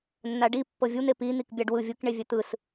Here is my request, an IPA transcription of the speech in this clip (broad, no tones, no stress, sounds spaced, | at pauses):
nː a ɖ i pː ɤ vʲ u n̪ e p i n̪ i k bʲ a ɖ w ɯ vʲ ɯ k ɳ e vʲ ɛ t̪ ɯ s